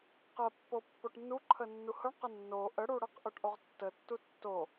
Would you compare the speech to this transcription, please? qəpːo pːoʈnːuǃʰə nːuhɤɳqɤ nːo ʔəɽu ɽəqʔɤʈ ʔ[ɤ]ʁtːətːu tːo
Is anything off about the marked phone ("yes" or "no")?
yes